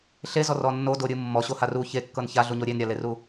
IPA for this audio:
ɬ e z ɔ r ɔ nː o d o ɾʲ ɯ mː ɔ ɕ o h a r u ç e kː ɤ n ç a ɮ u ɲ o ɾʲ e n ɾʲ a l e r u

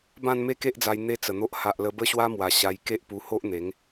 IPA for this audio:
b ã˥˧ n m e˦ k e˦ ʔ d͡z a˧ j n̪ e˦ t͡s ə˨˩ n̪ o˦ ʔ h a˨ ʔ l ə˧ b ə˦ ɕ w a˦ m w a˨˩ ɕ a˧ j k e˦ ʔ p u˧ h o˦ ʔ n̪ e˨˦ ŋ

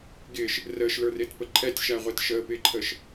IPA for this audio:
ɡ ɪː ʃ | r əː ʃ l ə˞ r ɪː t p ə ǃʰ ɛ tʲ ʃ æ ʁʷ ɛ t ʃ əː p ɪː ǃʰ əː ʃ

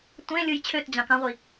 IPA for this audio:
tʷ ẽ lʲ ɯ j t͡ɕʰ ø t d͡ʑ ɑ̃ k ɑ̃ ʁʷ i

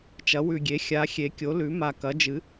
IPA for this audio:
t͡ʃ ɐ˩˥ w ʉ˨˩ ɡʲ e˩˥ xʲ a˩˥ xʲ e˩˥ kʲ o˩˥ l ʉ˩˥ m a˨˩ k ɐ˩˥ d͡ʒ ɨ˩˥

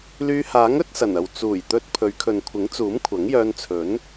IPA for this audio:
l yː˧ h aː˨˥ ŋ ɵ˥ t̚ s ɐ˨˩ n ɐ˨ w t͡s uː˨˩ j t̪ ɵ˧ t̚ pʰ ɵ˨˧ ɥ kʰ ɵ˨ n kʷʰ ɪ˨˥ ŋ t͡s uː˨˥ m kʷʰ ɐ˨˥ ŋ j œː˧ n t͡sʰ ɵ˨˥ n

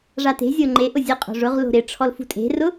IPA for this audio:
ʐ a t e̤ zʲ o ŋ͡ǃ e ʔ ʊ zʲ ə qʼ o̤ ʐ ʊ ʁ l o̤ ɾ ɪ ʈ͡ʂʰ ɔ l f ṳ tʼ e̤ r ʊ

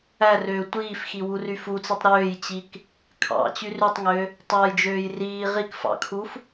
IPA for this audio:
æ r øː tʷ iː f x i w u r y f u t͡s i tˤ ɾ øː j t͡ɕ i k | kʰ ɑ̰ t͡ɕ y r y tˤ ŋ ø | tˤ ɑ j d͡ʒ øː j r iː ʁ i k f ɑ̰ kʰ u f

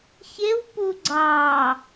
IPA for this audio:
ç e w p u ɡ͡ǀ ɑː

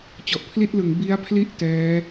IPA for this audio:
t͡ɕ ɔ˨˩ ʔ pʰ l i˥˩ t̚ l ɯ˩˦ ŋ b i˦˥ a̯ pʰ l i˥˩ ʔ t ɛː˦˥

